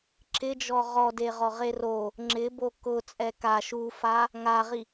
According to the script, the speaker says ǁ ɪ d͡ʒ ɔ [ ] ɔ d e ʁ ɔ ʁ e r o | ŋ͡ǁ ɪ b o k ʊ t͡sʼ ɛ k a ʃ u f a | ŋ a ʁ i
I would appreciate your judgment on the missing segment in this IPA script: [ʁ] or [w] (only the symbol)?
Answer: ʁ